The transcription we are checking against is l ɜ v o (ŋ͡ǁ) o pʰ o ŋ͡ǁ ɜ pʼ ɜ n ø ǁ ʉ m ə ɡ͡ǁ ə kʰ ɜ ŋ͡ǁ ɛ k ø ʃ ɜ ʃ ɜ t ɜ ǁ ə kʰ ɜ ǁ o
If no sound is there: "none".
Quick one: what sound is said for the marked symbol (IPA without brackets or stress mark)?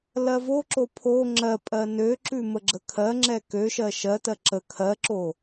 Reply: ǁ